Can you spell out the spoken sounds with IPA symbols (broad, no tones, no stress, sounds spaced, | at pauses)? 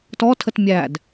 t ɔ tʰ ə t mʲ æ d